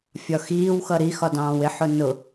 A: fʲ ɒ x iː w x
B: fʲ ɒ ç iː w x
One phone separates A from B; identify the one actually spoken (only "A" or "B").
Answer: A